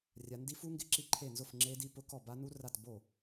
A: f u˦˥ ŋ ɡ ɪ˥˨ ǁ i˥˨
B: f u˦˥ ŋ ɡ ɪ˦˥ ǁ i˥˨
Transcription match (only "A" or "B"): B